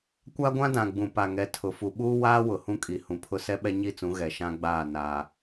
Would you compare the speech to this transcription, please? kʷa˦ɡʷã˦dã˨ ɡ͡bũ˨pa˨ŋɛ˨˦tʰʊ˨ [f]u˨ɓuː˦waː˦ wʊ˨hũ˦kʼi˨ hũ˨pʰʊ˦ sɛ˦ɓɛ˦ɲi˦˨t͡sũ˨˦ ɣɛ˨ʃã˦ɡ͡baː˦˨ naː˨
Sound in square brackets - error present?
no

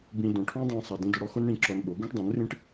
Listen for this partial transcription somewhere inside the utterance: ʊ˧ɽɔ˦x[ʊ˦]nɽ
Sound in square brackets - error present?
no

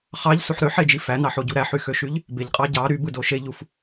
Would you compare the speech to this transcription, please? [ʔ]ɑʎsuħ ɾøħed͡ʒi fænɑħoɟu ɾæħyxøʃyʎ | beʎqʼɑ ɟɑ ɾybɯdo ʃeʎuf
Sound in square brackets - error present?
yes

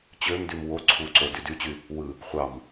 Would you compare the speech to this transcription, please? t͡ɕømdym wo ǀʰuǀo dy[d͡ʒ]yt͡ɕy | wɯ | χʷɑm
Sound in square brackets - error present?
yes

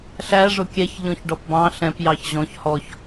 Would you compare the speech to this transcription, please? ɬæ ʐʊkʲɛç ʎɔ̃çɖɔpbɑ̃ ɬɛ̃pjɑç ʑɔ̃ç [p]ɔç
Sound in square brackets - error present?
yes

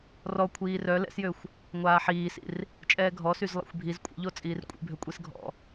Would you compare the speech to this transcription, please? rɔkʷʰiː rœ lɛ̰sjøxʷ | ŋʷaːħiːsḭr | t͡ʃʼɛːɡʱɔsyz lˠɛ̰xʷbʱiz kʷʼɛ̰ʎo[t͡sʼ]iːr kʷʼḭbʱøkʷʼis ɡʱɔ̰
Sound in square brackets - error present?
no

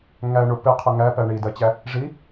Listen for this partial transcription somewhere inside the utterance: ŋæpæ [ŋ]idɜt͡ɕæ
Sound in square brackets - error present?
yes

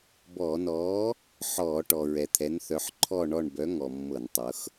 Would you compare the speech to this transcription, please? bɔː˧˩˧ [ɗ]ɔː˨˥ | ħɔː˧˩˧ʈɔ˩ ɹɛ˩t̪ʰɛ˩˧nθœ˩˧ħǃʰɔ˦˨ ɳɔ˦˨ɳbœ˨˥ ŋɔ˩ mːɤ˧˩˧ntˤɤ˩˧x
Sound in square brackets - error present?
yes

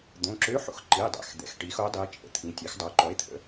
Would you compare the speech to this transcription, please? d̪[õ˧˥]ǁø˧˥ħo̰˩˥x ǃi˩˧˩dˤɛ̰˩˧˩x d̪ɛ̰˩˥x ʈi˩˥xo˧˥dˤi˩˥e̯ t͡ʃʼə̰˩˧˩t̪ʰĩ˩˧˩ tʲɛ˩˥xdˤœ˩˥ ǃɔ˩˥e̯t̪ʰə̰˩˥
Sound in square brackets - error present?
yes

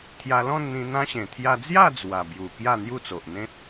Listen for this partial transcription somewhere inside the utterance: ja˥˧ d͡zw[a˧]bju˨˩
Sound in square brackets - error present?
yes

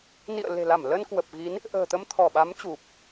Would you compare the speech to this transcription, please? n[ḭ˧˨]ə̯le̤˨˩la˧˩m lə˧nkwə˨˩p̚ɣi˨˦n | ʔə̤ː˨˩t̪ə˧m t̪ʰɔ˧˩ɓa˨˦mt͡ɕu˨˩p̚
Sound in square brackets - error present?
no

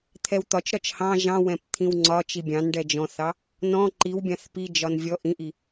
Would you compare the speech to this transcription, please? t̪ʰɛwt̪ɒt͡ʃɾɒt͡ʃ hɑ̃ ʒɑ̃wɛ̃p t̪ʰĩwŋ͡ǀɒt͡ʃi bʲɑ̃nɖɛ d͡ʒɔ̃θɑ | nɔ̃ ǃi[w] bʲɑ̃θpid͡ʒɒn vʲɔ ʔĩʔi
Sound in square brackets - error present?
no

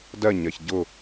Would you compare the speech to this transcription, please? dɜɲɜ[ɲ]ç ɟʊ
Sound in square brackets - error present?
yes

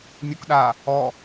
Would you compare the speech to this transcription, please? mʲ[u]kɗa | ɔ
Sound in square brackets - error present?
no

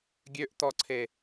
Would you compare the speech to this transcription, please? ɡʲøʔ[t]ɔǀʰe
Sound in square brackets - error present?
no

